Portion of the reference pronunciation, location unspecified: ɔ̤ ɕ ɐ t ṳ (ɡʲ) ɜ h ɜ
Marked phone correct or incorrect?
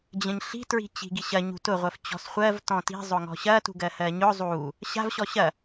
incorrect